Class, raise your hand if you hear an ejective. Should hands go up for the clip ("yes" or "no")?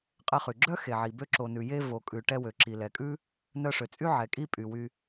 yes